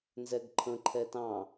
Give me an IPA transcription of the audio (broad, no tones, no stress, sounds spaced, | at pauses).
n z ɛ ɡ ǃʰ ə̃ ǃʰ ɛ t ɑ̃